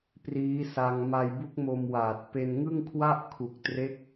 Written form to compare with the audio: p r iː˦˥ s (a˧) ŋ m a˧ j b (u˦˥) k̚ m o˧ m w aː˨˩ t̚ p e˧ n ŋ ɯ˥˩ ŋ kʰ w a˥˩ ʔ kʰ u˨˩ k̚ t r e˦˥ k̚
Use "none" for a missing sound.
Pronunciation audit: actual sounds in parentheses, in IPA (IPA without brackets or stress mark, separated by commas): a˧, u˦˥